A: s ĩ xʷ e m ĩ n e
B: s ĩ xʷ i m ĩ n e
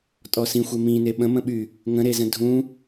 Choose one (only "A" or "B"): A